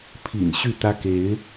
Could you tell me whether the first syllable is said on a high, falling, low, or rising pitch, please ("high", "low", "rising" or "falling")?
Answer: low